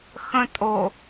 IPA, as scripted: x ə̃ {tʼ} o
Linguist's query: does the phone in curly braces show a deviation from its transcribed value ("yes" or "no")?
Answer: no